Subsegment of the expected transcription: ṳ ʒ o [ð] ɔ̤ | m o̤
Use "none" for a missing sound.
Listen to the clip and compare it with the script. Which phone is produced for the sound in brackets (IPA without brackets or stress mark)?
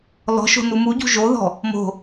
ð